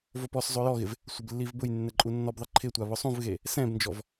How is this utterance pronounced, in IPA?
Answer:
vopɔszˤo jɔɣɪv | sʷɪblːivbʊjnːɛ ǃʼunːɔbðˤɪ ǃʰɪtʷa βʊsˤũvɣe | sɛ̃bnd͡ʒɔv

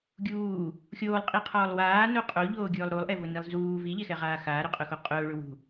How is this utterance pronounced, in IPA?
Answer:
ɡʲuː | xʲoːlˠqʼiqʰɔːlˠ waːno qʼoʎoːɡʲʊːlˠ ɾulˠʔɛvʊnilˠ zuː viʎɛxɛʁaː xaːɾʊqʼʊxo qʼʊːɭʊ wṳ

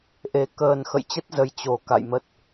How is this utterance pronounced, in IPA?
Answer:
ʔe˨˩ kəː˨˩n xə̰˧˨jt͡ɕə˦˥t̚ zə˧j t͡ɕo˨˩ ka̰˧˨jmə˦˥t̚

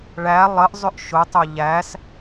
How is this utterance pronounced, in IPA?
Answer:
ɭæ lˠəʔzˤʏʔ ʃʊtˤʊ ʎæs

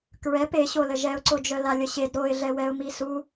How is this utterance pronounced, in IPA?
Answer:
kɹɛp eɕolə ʒɛʊ̯ǀod͡ʒœ lalʲəɕed ɾoɪ̯ɮɛwɛʊ̯mi su

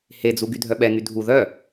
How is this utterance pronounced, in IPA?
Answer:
hed͡zu ɡydʱœɓɛŋy dʱu ðœ

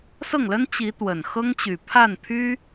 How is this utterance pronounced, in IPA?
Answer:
sɤ˥˩ŋlə˥n t͡ɕi˧˥t̪wə˨˩nxɤ˥ŋt͡ɕy˨˩ pʰa˥˩n pʰy˥

